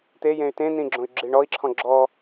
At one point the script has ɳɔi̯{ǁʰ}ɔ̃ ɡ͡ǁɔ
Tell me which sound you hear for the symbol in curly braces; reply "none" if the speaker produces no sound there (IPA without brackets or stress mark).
ǁʰ